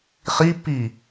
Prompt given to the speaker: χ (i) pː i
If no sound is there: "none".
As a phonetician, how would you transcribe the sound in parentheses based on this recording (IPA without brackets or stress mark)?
i